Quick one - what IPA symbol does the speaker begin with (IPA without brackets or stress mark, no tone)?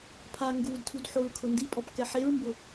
pʰ